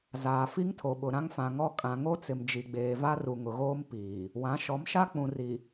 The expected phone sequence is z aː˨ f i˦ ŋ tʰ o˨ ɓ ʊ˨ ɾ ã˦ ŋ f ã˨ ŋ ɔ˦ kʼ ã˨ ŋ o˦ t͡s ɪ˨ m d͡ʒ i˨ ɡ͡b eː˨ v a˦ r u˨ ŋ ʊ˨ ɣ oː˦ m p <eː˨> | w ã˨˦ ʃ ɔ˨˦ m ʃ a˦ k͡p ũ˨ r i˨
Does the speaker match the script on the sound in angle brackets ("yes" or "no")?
no